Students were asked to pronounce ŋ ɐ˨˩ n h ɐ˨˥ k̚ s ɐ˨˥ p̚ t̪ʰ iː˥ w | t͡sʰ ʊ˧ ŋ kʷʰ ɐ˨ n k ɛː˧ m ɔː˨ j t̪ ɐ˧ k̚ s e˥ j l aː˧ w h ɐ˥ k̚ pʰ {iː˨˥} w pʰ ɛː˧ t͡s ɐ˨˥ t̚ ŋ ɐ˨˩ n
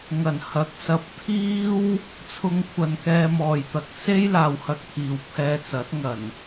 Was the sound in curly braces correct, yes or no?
no